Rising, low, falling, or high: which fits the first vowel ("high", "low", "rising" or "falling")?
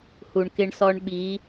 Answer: low